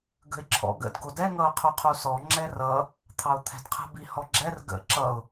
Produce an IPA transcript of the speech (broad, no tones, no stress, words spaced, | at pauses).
ɡə̤ɪ̯ǁʰɔ̰ɡə̰d ɡodɛ ŋʌʊ̯qʰuqʰusɔ ŋ͡ǁɛrʌ | t̪ʰɑʊ̯t̪ʰɛ̤dqʰə̤ bihɔɡ͡ǁɛr ɡə̰ ǁʌʊ̯